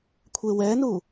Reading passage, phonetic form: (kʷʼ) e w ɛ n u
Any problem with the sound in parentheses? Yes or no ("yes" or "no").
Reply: yes